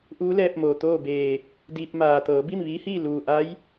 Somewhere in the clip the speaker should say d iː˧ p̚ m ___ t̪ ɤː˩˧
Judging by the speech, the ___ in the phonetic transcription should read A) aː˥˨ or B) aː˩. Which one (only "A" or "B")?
B